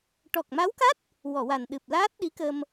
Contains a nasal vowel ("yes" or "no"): no